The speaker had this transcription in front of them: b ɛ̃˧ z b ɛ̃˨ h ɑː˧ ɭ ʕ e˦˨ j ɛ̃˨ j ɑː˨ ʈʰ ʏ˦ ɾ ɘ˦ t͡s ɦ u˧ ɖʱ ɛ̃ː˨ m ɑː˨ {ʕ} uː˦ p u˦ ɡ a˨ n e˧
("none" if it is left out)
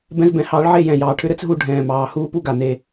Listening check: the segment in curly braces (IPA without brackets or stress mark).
h